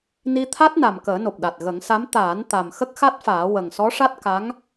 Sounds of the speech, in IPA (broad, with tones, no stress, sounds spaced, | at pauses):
n i˧ t̪ʰ a˦˥ t̚ n a˨˩ m k əː˨˩˦ n o˨˩ p̚ ɗ a˨˩ t̚ ɣ ə˨˩˦ ŋ s a˧˥ m t̪ aː˨˩˦ n t̪ a˨˩ m x ə˦˥ k̚ x a˦˥ t̚ f aː˨˩˦ w ə˨˩ ŋ s ɔ˧˥ ʂ a˦˥ t̚ k a˧˥ ŋ